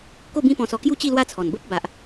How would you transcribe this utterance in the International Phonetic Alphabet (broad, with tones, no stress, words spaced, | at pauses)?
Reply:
ko˥˧bĩ˦pɔ̃˧sɔ˧ kju˥˧t͡ɕi˥˧lwa˦t͡sʰɔ˨˩n bə˦p̚ ba˨ʔ